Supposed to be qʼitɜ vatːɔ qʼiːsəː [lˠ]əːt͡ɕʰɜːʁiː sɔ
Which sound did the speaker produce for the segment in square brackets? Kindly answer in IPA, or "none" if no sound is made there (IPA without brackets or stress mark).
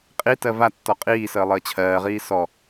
lˠ